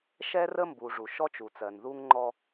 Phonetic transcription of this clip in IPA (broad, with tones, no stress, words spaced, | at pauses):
ʃɛ˦rə˦mbu˨ ʐu˨ʃɔ˦t͡ʃu˨t͡sɜ˨n ðu˦ŋŋ͡ǃɔ˦